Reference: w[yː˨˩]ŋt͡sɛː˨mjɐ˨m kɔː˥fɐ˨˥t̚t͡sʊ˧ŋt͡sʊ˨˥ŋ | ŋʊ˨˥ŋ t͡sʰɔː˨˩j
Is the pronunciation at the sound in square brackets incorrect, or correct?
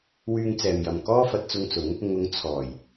incorrect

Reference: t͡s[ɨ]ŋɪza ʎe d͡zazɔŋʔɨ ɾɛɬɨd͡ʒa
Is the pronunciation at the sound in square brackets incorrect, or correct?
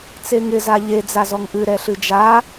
incorrect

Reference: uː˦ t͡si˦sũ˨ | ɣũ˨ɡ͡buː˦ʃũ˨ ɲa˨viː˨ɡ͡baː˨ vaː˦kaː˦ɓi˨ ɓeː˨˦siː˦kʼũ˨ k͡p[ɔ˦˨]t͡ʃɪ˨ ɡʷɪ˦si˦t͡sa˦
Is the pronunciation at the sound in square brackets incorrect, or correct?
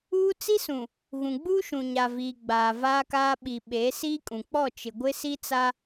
correct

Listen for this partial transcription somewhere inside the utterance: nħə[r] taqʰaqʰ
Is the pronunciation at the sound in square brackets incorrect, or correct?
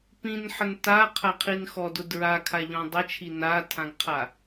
incorrect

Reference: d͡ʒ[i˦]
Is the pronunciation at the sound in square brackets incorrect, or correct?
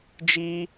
correct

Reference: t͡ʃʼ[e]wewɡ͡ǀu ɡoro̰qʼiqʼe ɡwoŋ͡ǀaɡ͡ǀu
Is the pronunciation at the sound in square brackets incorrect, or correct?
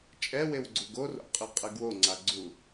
incorrect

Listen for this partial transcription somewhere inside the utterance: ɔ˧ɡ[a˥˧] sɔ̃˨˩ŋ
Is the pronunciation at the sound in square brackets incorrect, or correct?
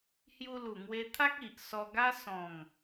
incorrect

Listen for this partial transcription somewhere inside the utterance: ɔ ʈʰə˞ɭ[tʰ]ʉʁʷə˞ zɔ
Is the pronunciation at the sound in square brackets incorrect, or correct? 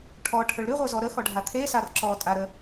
incorrect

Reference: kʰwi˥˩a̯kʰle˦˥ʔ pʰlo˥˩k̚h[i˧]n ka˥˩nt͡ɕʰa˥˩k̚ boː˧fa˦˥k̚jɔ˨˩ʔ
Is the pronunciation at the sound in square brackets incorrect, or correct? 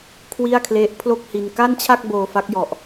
correct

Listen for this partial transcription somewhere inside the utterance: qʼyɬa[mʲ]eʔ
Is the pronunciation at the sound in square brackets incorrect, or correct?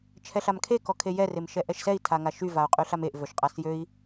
incorrect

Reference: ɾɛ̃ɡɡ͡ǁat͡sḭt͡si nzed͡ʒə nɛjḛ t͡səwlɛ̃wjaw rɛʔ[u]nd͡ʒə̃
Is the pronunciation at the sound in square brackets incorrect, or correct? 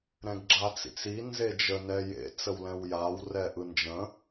incorrect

